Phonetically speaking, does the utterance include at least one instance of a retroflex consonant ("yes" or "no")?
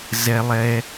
no